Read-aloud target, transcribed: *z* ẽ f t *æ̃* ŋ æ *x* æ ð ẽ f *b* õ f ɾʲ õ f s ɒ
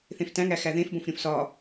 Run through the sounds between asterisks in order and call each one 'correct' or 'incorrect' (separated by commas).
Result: incorrect, correct, correct, correct